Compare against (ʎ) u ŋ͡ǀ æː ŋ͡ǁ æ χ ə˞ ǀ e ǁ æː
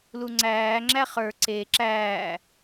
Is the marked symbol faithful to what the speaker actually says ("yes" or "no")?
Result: no